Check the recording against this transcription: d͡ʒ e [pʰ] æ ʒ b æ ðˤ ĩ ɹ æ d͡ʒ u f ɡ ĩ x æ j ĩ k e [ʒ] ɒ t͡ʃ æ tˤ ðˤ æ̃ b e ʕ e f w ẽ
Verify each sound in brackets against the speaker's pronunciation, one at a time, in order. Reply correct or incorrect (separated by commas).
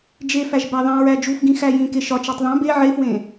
incorrect, incorrect